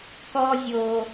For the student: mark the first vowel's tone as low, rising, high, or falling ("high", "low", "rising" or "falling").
high